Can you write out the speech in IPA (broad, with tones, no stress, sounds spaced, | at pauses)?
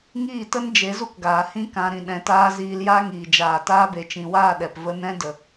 ŋ iː˦˨ t ə˦ n d͡ʒ e˨˦ z u˦ k ɡ aː˨ h ĩ˦ k ã˧ ɾ ĩ˧ ɗ ɛ̃˧ t aː˦ z iː˧ l j aː˦ ŋ iː˨ d͡ʒ aː˨ t aː˧ b e˨ t͡ʃ ĩ˨ w aː˦˨ ɗ ɛ˨ p v ə˦ n ɛ̃˦ d ə˨